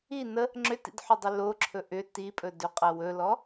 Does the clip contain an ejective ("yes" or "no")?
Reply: yes